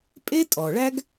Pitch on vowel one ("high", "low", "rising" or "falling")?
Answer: high